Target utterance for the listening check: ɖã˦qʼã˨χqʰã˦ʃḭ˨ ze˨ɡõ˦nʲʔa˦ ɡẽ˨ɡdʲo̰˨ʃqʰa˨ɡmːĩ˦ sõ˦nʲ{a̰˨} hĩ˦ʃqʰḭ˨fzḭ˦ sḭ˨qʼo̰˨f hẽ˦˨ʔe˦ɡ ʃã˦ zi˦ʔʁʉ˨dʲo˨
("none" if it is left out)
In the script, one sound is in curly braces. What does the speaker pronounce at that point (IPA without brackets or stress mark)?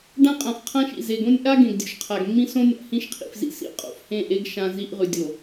a̰˨